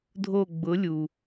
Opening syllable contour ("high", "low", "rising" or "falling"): falling